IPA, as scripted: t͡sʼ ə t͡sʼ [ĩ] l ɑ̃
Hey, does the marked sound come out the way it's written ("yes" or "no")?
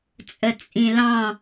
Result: yes